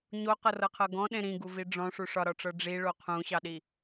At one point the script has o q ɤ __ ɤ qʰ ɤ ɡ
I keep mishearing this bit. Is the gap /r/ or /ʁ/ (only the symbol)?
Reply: r